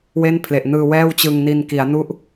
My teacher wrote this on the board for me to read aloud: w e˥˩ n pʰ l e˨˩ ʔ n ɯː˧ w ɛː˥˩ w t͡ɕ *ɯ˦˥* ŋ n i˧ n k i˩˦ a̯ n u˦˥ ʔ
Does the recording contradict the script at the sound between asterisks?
yes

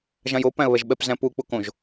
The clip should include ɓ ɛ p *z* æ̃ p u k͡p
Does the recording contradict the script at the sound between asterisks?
no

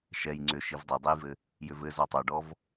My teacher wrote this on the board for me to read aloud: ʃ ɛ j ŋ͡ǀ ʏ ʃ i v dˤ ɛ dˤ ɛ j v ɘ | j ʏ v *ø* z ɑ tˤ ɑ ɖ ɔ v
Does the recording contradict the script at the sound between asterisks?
yes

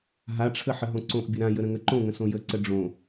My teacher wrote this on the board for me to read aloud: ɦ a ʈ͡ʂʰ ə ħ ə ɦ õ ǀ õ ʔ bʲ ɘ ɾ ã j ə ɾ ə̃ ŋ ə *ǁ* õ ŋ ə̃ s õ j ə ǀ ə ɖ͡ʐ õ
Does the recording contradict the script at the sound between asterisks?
yes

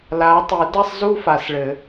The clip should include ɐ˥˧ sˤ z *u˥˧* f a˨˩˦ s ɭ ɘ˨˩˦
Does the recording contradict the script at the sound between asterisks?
no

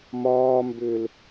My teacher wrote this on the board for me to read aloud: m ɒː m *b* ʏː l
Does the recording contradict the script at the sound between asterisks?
no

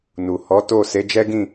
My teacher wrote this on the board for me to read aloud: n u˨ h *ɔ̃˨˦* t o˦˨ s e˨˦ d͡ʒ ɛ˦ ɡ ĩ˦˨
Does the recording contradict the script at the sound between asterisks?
yes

